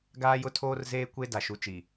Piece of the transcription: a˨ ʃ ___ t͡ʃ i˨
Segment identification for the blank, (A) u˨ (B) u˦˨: A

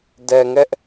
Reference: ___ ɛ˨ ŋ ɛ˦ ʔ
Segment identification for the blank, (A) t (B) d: B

